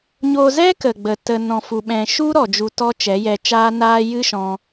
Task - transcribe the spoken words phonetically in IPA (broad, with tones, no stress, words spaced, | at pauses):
ɲo˧zɛ˦kə˨ɡ͡bə˨ tə˧ nɔ̃˧fu˧ɓɛ̃˧ ʃu˦ ɾɔ˨d͡ʒu˨tɔ˧ t͡ʃɛ˨˦jɛ˧t͡ʃaː˦naː˦ jɨ˦ʃɔ̃˧